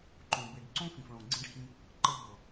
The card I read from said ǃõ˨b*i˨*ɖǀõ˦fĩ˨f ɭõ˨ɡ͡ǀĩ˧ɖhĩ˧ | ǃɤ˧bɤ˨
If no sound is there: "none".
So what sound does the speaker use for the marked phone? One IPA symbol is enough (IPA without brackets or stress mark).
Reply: i˨